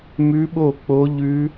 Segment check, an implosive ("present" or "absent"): present